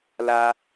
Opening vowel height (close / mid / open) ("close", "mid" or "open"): open